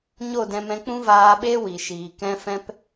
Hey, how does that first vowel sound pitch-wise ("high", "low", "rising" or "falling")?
falling